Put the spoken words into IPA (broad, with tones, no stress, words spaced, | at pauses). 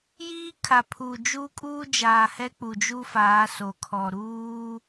jiː˦kʰa˨pʰuː˨ d͡ʒu˦kʼuː˦ d͡ʒaː˨hɛ˦k͡pu˨ d͡ʒu˦faː˨˦so˨ kʰɔ˨ɾuː˦